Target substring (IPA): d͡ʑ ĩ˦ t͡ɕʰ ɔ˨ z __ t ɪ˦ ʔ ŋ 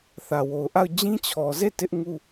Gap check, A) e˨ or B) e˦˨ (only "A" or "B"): B